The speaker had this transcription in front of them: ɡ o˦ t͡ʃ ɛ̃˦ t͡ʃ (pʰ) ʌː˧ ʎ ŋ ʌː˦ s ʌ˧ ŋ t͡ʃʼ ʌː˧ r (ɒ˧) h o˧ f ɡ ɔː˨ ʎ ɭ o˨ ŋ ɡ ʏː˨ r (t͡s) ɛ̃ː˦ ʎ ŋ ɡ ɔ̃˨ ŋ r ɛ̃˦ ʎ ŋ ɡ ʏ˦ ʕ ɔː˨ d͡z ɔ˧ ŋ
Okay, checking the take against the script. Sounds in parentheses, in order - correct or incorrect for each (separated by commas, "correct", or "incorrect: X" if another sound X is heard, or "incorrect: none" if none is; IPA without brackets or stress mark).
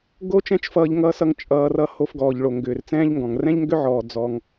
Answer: incorrect: f, incorrect: ʌ˧, correct